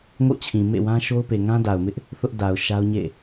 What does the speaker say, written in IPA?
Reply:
ŋo̰˦˨t͡ɕʰĩ˨ mḛ˦˨wã˦ʃo˦ʊ̯pe˨ ŋã˦da˨ʊ̯mɪ˦ʔ | θʊ˦ʔda˨ʊ̯ ʃa˦ʊ̯ɲḛ˦˨

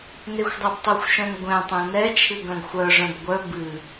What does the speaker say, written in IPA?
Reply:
nexʷdˤɛbtˤuxʷʃœ̃n ɡʷɛ̃tˤẽ nɛt͡ʃʰɨ ɡœ̃ɡxʷœʐœ̃b ɡʷœ bɨ

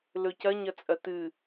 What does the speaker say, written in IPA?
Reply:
lɵcɐ ɲɐt͡sʼɐtɨ

